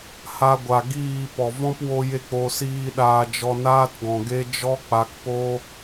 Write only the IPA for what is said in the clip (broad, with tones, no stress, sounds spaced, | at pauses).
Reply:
h a˧ ɡʷ a˨ ɡ iː˦˨ p ɔ˨ v ɔ̃˦ p w o˧ j e˧ k͡p o˧ s iː˦ ɗ aː˧ d͡ʒ ɔ˧ n aː˦ t ɡ ɔ̃˨ ɡ e˧ d͡ʒ ɔ˧ k͡p a˨ k p o˧